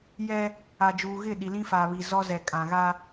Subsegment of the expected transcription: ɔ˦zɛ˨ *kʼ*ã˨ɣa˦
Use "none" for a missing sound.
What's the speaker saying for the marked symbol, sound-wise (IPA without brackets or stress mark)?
kʼ